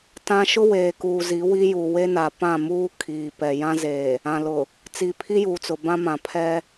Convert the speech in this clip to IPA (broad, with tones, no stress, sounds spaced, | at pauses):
t ã˦ ʃ ʊ˦ w eː˨ k uː˨ z i˨˦ w i˦ j u˨ w e˦ n a˨ p ã˦˨ m uː˦ kʰ iː˨ p ɛ˨ j ã˦ z eː˨ | ã˨ l ʊ˨ | t͡s iː˨ pʰ i˦ j uː˨ t͡s ʊ˨ b ã˦ m ã˨ pʰ ɛ˦